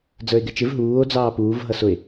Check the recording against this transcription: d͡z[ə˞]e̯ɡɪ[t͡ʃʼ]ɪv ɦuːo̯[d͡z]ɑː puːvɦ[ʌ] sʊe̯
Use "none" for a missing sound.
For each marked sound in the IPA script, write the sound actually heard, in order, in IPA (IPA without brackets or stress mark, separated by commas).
ə˞, t͡ʃ, d͡z, ʌ